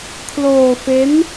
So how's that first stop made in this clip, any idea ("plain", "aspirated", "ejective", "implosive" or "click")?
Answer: aspirated